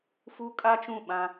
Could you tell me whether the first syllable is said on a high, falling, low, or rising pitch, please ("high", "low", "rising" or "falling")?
high